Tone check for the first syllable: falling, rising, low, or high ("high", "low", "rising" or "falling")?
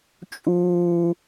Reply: high